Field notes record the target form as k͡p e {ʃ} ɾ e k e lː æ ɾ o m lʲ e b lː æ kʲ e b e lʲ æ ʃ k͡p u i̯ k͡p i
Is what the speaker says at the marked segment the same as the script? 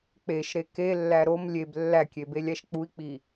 yes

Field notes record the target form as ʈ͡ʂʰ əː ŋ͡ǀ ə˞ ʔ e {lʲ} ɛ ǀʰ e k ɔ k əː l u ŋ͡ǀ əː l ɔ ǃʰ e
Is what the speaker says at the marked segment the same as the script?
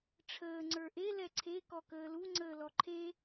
no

